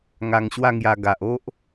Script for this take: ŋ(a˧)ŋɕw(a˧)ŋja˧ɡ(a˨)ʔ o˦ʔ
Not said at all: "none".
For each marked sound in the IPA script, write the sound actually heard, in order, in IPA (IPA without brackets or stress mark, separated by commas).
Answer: a˧, a˥˧, a˨